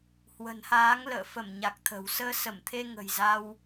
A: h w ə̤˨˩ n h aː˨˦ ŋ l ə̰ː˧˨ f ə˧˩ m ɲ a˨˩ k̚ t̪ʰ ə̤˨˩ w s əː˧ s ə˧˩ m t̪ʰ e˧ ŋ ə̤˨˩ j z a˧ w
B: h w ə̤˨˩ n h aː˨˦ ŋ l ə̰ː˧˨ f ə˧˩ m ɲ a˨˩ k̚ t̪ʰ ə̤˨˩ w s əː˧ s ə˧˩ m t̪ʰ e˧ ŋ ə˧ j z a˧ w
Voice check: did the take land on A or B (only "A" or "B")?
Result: A